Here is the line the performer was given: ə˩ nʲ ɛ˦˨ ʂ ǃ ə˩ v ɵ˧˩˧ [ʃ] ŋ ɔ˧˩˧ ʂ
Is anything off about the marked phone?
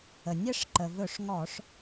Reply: yes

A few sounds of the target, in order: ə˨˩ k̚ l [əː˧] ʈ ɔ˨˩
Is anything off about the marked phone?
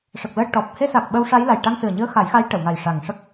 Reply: no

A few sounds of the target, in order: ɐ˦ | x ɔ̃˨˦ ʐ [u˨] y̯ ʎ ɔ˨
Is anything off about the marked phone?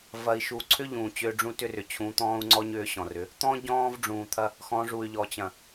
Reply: no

